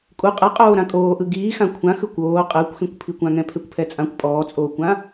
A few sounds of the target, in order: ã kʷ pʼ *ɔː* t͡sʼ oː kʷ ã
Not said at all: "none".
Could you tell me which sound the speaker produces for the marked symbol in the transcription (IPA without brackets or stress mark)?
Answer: ɔː